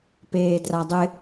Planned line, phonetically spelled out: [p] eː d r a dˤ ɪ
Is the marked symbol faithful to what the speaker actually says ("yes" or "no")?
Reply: yes